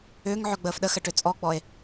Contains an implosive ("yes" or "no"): yes